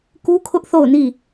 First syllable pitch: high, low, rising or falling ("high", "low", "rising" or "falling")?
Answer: high